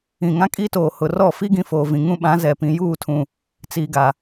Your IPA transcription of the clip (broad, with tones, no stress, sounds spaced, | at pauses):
ĩ˨ ŋ ã˦ kʼ iː˦ t oː˨ h ʊ˨ r ɔ˦˨ f i˦ ɡ ĩ˨ f oː˨ v ĩ˨ ŋ ũ˦ ɓ ã˨˦ z ɛ˨ p ĩ˨ j uː˦˨ tʰ ũ˨ | t͡s iː˨ ɡ a˨